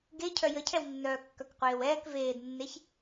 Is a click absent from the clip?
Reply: yes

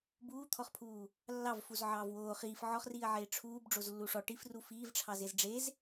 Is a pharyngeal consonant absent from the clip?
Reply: no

